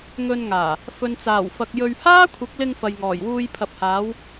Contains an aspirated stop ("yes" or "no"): yes